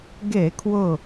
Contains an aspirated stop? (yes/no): yes